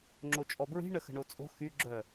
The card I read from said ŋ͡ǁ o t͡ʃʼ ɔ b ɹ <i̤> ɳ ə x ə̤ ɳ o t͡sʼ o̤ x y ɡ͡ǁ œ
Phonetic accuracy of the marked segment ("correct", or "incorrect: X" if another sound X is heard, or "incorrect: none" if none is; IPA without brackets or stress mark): correct